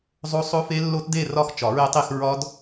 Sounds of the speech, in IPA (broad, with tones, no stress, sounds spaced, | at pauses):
zˤ o˦˥ sˤ o˦˥ f e˦˥ lː o˦˥ t d e˥˧ r ɒ˥˧ x t͡ʃ ɒ˨˩˦ ɹ e˦˥ tˤ i˥˧ x ɹ ɒ˦˥ d